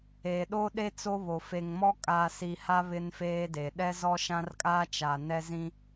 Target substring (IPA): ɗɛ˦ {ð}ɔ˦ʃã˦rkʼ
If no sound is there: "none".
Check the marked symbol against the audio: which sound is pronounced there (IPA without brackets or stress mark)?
z